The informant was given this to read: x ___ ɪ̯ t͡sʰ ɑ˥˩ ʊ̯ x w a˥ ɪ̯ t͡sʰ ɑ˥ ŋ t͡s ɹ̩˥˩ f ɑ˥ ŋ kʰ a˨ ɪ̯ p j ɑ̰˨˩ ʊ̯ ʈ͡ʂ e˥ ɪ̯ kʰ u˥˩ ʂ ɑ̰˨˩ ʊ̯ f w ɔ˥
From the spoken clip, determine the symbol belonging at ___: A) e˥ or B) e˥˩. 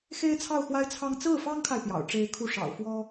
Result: A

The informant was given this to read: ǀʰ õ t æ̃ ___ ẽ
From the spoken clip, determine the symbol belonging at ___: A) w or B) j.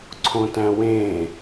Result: A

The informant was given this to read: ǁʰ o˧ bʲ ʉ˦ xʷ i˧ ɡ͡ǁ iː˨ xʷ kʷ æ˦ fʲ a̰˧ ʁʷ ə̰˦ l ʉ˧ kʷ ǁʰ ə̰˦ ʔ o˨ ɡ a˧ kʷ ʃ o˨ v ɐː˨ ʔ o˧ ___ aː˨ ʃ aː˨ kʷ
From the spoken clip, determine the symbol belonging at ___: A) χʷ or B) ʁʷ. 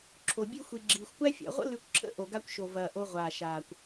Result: B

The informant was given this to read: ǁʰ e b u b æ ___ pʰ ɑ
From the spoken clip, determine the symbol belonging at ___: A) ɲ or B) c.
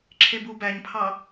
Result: A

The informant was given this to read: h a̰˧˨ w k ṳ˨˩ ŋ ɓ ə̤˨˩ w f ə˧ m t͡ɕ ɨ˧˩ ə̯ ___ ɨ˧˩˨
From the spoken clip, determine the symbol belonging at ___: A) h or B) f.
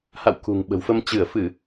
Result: B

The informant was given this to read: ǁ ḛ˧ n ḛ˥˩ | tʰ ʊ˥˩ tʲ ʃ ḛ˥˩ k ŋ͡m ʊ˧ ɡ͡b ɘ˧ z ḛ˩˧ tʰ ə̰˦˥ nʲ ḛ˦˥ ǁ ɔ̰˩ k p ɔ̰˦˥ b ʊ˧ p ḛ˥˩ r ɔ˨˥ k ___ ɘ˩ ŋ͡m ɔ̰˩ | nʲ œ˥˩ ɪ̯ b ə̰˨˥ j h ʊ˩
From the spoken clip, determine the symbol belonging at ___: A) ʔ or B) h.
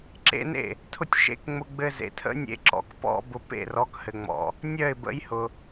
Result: B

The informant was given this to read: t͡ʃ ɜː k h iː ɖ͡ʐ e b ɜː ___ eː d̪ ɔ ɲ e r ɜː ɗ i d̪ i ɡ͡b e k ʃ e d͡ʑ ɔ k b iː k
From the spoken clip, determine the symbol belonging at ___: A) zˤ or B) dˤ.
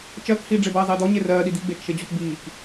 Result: A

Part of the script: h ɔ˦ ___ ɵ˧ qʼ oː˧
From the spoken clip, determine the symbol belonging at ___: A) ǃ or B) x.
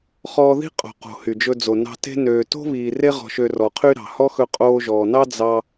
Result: B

